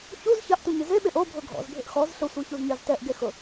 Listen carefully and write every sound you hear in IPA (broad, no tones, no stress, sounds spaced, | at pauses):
ç u z ç a ʔ t u ɲ ɪ z e ɓ e ʔ o bʱ ʊ ɡʱ ɔ̰ z bʱ ɪ ʔ x ɔ z ɬ ʊ sʷ i ç u z ɲ a z t ɛ ʔ ɡ e x ʊ